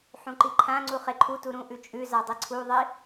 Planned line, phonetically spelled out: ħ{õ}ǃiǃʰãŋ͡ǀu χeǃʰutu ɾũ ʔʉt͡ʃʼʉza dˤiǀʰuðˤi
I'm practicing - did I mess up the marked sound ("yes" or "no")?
yes